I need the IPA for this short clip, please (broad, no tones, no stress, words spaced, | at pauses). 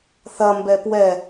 θɐmbɛ pwɛ